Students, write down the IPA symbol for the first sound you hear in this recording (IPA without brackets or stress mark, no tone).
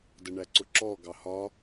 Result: d